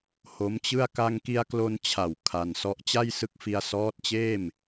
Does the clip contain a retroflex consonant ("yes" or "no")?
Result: no